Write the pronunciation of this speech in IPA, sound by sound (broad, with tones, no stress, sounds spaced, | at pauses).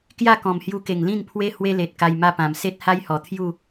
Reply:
k j a˥˧ k ɔ̃˨˩ m h j u˧ k e˨˩ ŋ l ĩ˥˧ n pʰ w e˦ h w e˦ l e˨ t̚ k a˧ j m a˥˧ p ã˨˩ m s e˦ t̚ h a˦ j h ɔ˨˩ t̪ʰ j u˥˧